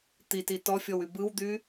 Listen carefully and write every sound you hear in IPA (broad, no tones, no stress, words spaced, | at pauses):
t̪iti tɔfʲɔwy bɯwd̪y